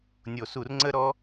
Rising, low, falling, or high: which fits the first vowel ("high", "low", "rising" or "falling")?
low